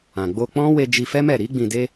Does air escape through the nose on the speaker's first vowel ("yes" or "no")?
yes